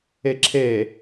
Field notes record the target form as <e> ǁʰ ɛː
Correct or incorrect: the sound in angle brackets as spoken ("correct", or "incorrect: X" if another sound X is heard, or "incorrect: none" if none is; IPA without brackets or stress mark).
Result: incorrect: ɛ